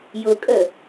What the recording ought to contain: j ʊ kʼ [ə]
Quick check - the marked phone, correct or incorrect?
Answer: correct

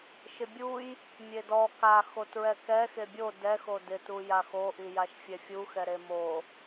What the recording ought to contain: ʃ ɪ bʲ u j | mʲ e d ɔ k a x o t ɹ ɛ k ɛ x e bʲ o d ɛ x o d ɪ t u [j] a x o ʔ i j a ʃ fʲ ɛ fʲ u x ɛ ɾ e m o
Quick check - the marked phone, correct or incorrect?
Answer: correct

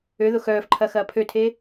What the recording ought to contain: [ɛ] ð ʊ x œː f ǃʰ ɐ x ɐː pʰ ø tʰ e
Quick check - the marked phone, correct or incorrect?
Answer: incorrect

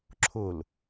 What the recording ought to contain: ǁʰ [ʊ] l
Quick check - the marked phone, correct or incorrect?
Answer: correct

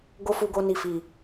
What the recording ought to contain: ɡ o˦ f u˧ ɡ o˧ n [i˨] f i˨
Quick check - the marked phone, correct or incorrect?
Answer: correct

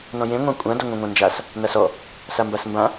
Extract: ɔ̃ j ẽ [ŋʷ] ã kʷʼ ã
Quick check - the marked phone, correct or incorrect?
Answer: correct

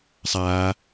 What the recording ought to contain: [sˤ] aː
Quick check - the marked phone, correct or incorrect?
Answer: correct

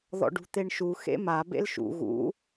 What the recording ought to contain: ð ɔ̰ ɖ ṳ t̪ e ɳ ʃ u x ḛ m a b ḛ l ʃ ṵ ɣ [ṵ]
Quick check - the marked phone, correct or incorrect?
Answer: correct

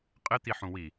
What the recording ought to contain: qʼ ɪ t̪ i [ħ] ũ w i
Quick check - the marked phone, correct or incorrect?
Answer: correct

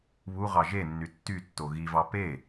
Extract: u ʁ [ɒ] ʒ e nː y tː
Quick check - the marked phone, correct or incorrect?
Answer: incorrect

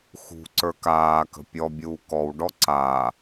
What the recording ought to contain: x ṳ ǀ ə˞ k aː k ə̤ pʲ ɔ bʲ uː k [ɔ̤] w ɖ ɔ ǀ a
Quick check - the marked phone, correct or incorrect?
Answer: incorrect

